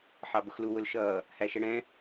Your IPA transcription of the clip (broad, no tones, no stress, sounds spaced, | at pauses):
ħ ɑ b ʊ x l u w ʊ l ʃ ʌː | h æ ʃ ɛ ɽ ɛ̃